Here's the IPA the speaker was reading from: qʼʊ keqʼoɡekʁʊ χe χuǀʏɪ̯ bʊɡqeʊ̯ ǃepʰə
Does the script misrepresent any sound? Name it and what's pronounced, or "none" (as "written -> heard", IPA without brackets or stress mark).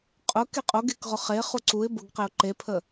ʏ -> u